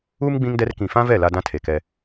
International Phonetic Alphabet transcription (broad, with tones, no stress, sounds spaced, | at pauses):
u˦ m ɡ͡b ĩ˦ ŋ d ɛ˦ r k ĩ˨ f ã˦ v ɛ˦˨ l a˦ d ã˦ tʰ e˨ k ɛ˦